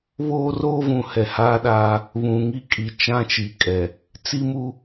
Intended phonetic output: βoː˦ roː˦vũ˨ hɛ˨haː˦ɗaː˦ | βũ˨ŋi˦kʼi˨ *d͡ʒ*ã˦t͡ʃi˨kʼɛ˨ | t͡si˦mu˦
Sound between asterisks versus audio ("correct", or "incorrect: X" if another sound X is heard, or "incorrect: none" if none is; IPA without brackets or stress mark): incorrect: t͡ʃ